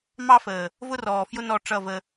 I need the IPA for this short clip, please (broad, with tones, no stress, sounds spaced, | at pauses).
m ɑ˦ f əː˨ | v ʊ˦ r ɔː˨ f j ʊ˦ n ɔ˦˨ ʈ͡ʂ ʌ˦˨ v ə˦